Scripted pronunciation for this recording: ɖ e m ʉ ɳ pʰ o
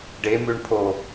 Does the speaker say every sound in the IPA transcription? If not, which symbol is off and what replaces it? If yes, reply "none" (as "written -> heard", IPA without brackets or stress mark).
none